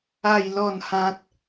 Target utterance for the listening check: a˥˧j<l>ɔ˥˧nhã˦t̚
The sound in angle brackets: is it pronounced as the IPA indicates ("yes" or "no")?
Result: yes